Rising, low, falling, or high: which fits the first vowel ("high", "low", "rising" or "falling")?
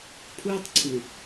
high